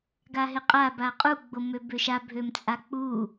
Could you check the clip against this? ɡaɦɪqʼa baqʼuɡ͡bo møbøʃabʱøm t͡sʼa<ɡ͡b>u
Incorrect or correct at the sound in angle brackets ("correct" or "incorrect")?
incorrect